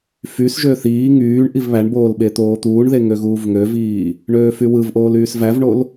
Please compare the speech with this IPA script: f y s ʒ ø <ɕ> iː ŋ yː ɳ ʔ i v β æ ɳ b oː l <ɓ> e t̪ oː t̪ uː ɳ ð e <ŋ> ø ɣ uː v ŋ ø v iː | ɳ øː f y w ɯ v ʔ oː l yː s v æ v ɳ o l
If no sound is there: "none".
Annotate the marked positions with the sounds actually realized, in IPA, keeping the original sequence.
θ, ɓ, ŋ

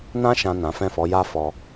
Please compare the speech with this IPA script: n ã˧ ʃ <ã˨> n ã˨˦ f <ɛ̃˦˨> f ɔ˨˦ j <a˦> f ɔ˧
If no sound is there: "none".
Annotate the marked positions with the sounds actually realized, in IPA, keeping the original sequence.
ã˨, ɛ̃˦˨, a˦

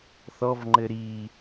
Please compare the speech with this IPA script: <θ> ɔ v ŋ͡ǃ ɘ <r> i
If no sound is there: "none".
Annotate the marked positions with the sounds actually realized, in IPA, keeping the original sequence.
θ, ɾ

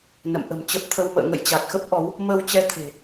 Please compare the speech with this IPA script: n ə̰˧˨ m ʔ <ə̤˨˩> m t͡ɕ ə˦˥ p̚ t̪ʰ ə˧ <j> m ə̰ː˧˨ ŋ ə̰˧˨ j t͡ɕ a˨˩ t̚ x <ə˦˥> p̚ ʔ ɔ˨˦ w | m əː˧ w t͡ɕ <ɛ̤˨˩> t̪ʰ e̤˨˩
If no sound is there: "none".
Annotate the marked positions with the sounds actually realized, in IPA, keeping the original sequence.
ə̤˨˩, w, ə˦˥, ɛ˧

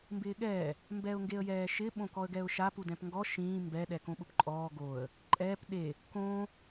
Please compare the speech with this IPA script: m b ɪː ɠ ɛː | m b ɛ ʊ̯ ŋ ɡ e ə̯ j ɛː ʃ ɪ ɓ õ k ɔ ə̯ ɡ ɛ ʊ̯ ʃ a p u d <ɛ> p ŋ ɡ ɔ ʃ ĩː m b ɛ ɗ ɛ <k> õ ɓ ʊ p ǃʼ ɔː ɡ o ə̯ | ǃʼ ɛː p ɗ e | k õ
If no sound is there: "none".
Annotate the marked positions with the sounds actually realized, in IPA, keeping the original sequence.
ɛ̃, k

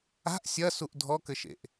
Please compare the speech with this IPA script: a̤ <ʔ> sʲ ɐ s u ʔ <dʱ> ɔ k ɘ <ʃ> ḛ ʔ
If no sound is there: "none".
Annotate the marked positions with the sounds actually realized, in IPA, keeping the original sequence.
ʔ, dʱ, ʃ

